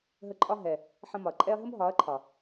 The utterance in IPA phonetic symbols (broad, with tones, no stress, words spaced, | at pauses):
ɦə˧ǃʼɒ˦ ɦɛ˨ | ħə̃˧mɒ˨ɐ̯ǃʼɛ˦ɐ̯ ɦə˦mɦɒ˨˦ɐ̯ǃʰɒ˨